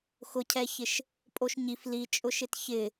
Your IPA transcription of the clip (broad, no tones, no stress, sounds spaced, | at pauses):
x ʊ cʰ ɛ ç ɪ ʃ | pʼ o ʃ ɲ i f l i t͡ʃʼ ʊ ʃ ɪ t ç ɪ